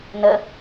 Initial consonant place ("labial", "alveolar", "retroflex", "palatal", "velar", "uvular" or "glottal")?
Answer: alveolar